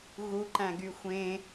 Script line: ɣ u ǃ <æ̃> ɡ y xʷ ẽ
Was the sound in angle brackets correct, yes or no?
yes